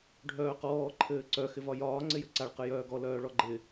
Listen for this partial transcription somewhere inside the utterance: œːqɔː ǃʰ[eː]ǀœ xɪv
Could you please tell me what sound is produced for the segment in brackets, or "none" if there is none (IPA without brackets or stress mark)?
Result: ɘː